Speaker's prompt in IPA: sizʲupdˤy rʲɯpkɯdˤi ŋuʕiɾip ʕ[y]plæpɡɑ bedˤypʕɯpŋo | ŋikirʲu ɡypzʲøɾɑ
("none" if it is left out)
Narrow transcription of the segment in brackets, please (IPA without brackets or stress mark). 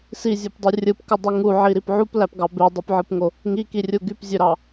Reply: u